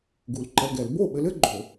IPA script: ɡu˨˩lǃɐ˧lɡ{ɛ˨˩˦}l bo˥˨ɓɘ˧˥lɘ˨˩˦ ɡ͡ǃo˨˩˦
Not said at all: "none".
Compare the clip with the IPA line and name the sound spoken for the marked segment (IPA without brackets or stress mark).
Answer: ɛ˨˩˦